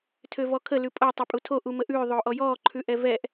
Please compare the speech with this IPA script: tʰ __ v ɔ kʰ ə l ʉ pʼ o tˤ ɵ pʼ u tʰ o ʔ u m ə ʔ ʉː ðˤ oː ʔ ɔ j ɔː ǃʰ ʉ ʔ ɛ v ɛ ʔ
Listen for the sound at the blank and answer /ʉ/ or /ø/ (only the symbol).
ø